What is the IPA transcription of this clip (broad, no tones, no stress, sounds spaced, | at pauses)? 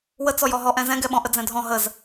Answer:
w ə t͡s ɔ j ɔ ɦ ɔ ʔ ɛ̃ z ɛ̃ ɡ ɛ ɓ ɔ̃ ʔ ə d͡z ɛ̃ dʱ ɔ̃ ɦ ə z